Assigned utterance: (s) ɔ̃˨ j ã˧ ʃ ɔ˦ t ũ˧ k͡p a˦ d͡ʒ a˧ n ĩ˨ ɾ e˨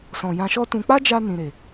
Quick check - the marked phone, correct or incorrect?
correct